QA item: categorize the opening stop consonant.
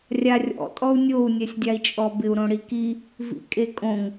ejective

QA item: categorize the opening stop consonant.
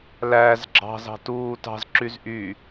click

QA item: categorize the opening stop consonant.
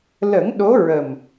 implosive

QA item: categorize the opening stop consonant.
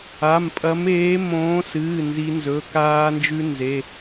ejective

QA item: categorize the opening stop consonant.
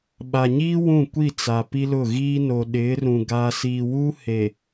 implosive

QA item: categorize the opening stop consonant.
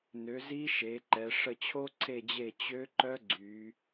click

